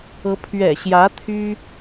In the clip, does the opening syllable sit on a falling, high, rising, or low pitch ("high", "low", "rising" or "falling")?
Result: rising